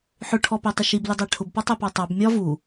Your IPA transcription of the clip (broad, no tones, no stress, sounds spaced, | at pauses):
ħ ʊ ʈʰ ɔ p æ tˤ ɪ ʃ i b l ɪ dˤ æ ʈʰ ʊ b p ɒ tˤ æ p ɑ tˤ ɑ b mʲ ɒ v u